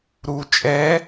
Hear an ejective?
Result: yes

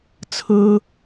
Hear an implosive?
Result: no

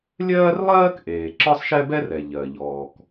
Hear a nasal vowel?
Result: no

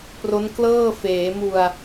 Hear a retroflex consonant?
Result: no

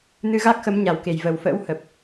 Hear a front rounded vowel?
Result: no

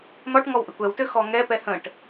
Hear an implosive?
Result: no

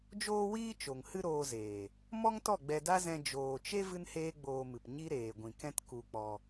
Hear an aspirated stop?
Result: no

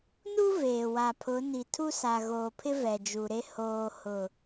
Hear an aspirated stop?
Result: yes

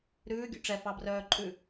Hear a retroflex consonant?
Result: yes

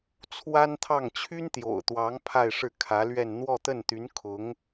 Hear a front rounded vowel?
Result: yes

